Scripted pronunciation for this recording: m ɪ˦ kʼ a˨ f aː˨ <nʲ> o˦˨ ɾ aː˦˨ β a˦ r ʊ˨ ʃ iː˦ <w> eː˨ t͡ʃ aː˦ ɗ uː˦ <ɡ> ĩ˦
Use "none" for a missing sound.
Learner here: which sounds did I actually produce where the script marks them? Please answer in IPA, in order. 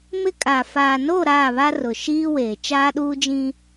n, w, d͡ʒ

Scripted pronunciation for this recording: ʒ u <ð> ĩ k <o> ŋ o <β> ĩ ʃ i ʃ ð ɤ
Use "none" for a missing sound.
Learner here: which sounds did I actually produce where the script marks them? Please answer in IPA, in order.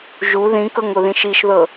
ð, ɤ, ð

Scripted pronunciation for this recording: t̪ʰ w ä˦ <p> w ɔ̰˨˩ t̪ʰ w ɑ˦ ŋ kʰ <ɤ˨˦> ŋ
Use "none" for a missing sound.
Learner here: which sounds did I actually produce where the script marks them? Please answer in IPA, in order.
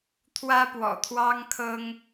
p, ɤ˦

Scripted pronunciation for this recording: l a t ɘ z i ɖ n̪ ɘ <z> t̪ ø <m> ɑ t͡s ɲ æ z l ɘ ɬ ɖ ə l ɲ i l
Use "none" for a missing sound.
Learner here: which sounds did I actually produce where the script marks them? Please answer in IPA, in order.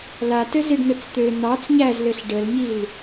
t͡s, n̪

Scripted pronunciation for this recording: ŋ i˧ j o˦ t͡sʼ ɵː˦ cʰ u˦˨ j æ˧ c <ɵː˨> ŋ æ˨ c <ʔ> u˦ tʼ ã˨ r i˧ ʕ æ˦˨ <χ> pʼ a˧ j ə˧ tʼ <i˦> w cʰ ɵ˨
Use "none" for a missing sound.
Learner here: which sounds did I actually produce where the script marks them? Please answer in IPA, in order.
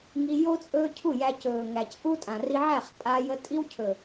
ɵː˨, ʔ, χ, i˦

